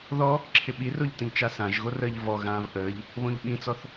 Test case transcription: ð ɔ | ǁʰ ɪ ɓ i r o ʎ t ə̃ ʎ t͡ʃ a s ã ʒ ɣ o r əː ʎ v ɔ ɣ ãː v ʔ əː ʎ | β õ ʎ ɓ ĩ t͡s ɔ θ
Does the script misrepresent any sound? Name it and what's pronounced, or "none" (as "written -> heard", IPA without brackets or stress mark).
none